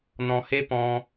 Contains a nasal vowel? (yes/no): yes